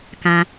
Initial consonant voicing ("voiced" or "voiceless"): voiceless